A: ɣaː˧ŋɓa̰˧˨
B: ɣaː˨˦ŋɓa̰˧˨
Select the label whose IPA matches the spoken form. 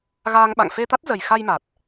A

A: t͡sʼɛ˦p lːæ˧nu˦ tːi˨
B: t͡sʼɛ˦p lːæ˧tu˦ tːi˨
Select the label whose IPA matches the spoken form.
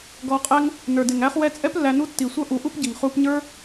A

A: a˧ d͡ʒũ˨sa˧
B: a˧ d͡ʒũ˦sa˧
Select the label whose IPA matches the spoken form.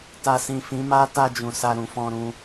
A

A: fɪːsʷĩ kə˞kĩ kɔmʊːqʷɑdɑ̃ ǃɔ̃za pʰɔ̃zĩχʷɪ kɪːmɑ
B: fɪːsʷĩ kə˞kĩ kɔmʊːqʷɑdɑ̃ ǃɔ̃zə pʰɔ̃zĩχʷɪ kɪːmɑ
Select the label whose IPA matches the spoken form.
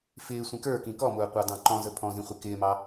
B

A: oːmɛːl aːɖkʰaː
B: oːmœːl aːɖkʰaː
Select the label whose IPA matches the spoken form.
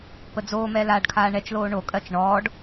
A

